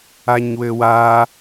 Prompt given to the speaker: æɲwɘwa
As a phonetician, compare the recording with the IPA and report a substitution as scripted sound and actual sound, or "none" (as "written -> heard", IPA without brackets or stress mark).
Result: æ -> a